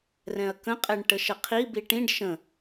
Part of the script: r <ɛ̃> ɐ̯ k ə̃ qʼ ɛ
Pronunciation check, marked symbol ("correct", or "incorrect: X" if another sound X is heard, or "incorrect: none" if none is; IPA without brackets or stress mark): correct